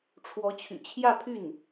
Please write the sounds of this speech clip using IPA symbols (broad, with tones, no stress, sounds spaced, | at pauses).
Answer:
ʈ͡ʂʰ w ɔ˧˥ t͡ɕʰ y̰˨˩ t͡ɕʰ j ä˥˧ pʰ y˥˩ n